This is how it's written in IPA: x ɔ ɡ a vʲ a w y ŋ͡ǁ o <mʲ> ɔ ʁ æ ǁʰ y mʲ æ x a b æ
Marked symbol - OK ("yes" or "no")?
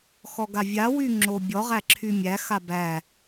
no